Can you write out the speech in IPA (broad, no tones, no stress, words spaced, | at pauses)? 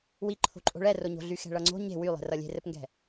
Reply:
wiǃʰo̤ ǃʼo̤ɭɛroɲo̤ ɮyxɛ̤ɭʌŋ͡ǀo̤ ɲe̤ wylˠɛ̤rʌ lʲe̤rɘpŋɡɛ̤